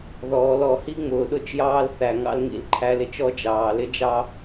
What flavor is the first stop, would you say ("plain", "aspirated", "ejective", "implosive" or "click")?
implosive